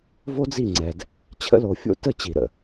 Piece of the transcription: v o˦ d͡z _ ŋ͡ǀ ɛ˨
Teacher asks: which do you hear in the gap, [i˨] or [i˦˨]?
i˦˨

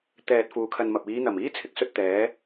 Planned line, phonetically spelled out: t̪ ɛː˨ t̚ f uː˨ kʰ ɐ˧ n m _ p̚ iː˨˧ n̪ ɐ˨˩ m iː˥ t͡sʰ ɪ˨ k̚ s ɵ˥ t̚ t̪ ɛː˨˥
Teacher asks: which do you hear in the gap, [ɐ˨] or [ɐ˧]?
ɐ˨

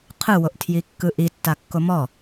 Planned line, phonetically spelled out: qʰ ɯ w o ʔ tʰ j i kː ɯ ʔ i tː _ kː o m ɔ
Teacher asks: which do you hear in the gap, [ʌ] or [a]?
a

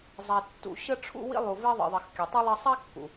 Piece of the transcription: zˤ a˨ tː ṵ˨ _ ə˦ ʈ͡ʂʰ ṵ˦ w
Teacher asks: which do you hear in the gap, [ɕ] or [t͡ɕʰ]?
ɕ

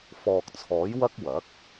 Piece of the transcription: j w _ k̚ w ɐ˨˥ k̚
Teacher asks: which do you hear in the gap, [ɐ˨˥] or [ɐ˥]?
ɐ˥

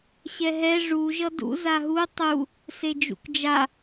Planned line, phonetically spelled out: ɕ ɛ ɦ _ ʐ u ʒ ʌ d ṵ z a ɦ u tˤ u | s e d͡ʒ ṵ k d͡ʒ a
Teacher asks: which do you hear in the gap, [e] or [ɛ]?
ɛ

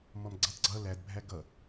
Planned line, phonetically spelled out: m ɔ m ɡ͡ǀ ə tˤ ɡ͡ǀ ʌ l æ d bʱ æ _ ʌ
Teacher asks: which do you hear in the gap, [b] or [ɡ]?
ɡ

